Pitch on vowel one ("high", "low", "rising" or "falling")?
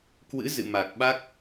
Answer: rising